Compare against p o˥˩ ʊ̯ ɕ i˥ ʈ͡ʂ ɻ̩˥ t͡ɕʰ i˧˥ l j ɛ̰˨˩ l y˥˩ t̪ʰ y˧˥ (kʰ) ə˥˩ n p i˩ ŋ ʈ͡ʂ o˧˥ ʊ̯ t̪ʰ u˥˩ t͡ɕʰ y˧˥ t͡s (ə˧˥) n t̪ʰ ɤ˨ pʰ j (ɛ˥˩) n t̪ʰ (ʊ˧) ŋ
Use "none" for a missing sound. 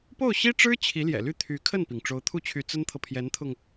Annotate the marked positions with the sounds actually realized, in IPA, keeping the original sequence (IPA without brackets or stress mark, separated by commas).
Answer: kʰ, ə˥, ɛ˧˥, ʊ˧